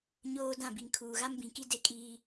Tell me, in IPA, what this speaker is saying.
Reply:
ɲ oː˨ d ã˦˨ b i˨ ŋ kʰ uː˨ ɣ a˦ m b ĩ˨ k i˦ d e˦ kʼ iː˦

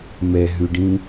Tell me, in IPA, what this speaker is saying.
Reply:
m ɛ ɦ ʉ ɖ ĩ

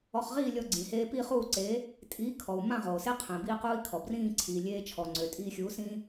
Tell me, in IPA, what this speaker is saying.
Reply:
ɔ˧ χ ʁ iː˥˧ lʲ ɔ˧ ɡ͡ǀ ĩ˩ h eː˧ p i˥˧ χ uː˥˧ ǀ eː˨˥ | tʼ iː˨˥ kʰ ɔ˩ u̯ m ã˥˧ ʁ oː˩ s e˥ qʰ ẽ˩ b iː˧ q uː˧ i̯ kʰ ɔ˩ b r ĩː˥˧ ǀʰ iː˩ lʲ eː˧ t͡ʃʰ ɔ˩ ŋ͡ǀ ø˩ tʼ iː˧ xʲ uː˨˥ s ĩː˥

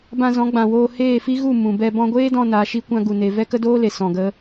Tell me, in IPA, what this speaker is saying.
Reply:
b ã˧ z ɔ̃˨˦ ɡ͡b ã˨ w oː˧ h eː˦˨ f i˦ ɣ u˦˨ m ũ˨ b ɛ˧ b ɔ̃˧ ɡʷ eː˦ d ɔ̃˧ n a˨˦ ʃ i˦ kʷ ã˦ ɡ u˧ n e˧ v ɛ˦ k ə˦ d oː˦ l e˨ s ɔ̃˧ ɡ ə˦

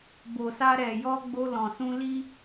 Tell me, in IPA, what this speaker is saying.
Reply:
b o˨ s a˧ ɾ ɛ˨ j ɔ˧ ɡ͡b o˧ l ɔ̃˨ s ũ˧ l i˦

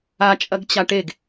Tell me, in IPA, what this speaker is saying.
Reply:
a t͡ʃʼ ɐ ɡ t͡ɕ a ʈ e ɡ

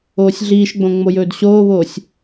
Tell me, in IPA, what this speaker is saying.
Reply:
oː sʲ ɮ iː ʃ ɡ͡b õ ŋ͡m o j ɵː d ɕ oː β oː sʲ

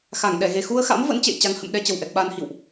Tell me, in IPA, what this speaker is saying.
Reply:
x a˧˩ ŋ ɗ ɛ˧˩ ɣ e˨˩ x u˧ ə̯ x a̰˧˥ m v ə̰˧˥ n t͡ɕ ḛ˧˨ j t͡ɕ a˨˦ ŋ h ə̰˧˨ m ɗ ɛ˧ t͡ɕ ə˨˩ w ʔ ɛ˨˩ k̚ ɓ aː˧ n h ḭ˧˨ w ʔ

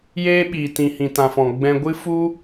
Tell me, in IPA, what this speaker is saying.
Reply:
j eː˦ ɓ iː˨ t ĩ˨ h ĩ˨ t ã˨ f ɔ̃˨ ɡ͡b ɛ̃˧ ɡʷ ɨ˦ f u˦

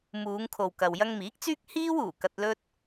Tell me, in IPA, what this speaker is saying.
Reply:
m uː˨˧ ŋ kʰ o˨ w k ɐ˨ w j ɐ˧ ŋ m iː˨˥ k̚ t͡s yː˥ k̚ h iː˥ w uː˨˩ k ɐ˧ t̚ l ɵ˥ t̚

